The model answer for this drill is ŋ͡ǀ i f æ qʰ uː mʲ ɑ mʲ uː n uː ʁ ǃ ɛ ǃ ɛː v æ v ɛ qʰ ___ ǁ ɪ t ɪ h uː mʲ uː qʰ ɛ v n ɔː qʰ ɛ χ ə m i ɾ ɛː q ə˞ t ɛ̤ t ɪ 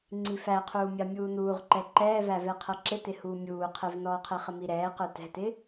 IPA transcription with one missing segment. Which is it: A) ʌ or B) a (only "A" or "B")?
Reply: A